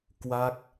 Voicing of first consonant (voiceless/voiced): voiceless